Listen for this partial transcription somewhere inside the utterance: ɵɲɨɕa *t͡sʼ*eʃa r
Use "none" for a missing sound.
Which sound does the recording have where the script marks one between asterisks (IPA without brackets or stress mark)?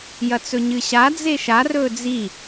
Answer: d͡z